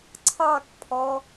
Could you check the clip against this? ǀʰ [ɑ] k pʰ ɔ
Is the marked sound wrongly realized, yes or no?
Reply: no